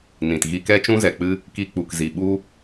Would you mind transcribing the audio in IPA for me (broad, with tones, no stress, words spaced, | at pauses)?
nĩ˨tɣi˧kɛ˦ t͡ʃũ˦zɛ˨k͡pɨ˦ | ki˧k͡pu˨k zi˨ɓu˦